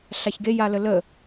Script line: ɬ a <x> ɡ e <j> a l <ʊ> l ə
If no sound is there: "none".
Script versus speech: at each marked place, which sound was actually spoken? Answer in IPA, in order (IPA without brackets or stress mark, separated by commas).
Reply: ç, j, ə